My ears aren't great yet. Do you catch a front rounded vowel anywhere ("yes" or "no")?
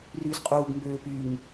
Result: yes